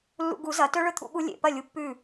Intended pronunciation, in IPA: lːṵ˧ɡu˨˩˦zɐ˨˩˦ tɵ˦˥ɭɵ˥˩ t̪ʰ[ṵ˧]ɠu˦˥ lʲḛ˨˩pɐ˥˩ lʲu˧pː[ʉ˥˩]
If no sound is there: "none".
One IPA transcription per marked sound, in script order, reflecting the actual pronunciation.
ṵ˦˥, ʉ˥˩

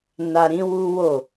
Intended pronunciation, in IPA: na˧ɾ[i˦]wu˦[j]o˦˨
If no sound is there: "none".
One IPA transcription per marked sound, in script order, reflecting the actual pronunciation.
ĩ˦, w

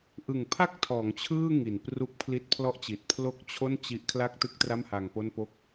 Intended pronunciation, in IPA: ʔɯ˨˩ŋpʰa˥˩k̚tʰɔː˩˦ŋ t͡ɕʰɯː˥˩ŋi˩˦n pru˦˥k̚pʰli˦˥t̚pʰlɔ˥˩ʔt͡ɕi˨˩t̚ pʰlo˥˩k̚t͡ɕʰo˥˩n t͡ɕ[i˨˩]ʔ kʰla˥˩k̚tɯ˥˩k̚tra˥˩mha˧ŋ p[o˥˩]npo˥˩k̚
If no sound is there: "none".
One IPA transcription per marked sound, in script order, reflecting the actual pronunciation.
i˦˥, o˥˩

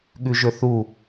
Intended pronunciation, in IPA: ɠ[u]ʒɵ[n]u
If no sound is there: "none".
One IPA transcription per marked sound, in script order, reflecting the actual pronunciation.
ʉ, θ

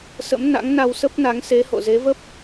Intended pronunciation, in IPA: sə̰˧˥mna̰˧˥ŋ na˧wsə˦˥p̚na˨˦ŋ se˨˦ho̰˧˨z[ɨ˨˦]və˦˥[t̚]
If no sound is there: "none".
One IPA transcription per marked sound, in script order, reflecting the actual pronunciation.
e˨˦, p̚

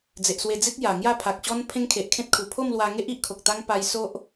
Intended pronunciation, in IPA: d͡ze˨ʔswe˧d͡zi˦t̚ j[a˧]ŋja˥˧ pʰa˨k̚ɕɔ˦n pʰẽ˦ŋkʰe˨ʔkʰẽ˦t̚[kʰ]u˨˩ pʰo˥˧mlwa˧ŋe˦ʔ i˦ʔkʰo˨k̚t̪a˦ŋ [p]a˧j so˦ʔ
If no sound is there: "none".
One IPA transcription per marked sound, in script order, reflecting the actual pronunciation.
a˨˩, kʰ, p

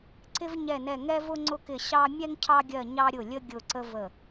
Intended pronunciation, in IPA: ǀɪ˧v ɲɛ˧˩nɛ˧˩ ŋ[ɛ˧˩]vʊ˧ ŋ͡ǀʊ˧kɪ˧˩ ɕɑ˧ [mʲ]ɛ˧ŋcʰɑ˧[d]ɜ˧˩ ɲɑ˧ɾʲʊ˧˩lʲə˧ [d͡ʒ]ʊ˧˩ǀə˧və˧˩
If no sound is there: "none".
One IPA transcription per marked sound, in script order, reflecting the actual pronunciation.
ɛ˧, mʲ, ɡʲ, ɡʲ

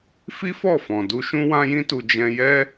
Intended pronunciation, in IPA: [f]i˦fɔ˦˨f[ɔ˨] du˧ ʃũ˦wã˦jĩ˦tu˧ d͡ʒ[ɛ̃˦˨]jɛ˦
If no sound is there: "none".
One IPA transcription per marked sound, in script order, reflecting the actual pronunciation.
f, ɔ̃˨, ɛ̃˧

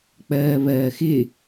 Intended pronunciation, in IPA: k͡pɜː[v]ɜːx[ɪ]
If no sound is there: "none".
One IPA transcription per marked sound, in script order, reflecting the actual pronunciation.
β, ɪ

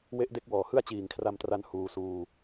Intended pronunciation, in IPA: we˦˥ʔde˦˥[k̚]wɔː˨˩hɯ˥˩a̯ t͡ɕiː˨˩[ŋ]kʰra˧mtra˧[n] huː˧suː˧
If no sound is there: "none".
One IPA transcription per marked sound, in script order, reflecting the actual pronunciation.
k̚, ŋ, n

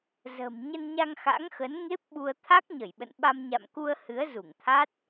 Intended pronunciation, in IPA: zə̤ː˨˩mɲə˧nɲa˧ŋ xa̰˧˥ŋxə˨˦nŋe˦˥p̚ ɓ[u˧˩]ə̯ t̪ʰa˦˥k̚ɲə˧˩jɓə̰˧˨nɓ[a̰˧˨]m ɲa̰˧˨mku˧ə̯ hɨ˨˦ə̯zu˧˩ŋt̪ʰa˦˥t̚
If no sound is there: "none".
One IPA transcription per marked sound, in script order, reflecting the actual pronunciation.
u˧, a˧

